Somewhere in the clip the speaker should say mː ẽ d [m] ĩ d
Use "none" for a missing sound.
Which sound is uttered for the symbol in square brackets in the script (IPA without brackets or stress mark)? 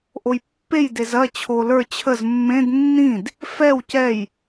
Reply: nː